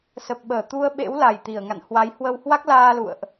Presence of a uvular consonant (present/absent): absent